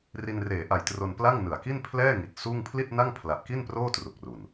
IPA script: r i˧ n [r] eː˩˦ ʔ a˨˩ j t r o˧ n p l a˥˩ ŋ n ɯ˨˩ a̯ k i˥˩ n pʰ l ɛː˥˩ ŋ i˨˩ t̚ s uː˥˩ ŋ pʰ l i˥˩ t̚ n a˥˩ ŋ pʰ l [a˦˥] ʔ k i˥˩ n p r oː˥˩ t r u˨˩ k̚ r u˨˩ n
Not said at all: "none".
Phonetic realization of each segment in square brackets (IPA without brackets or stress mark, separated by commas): r, a˨˩